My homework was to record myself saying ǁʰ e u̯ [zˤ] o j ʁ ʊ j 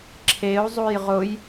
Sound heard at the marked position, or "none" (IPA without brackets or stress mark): zˤ